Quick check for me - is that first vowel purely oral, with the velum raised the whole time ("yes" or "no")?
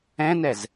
no